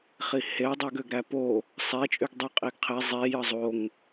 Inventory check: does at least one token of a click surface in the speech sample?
no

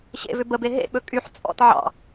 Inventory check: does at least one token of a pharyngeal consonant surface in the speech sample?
yes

